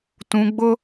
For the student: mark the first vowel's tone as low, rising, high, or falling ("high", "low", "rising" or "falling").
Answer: high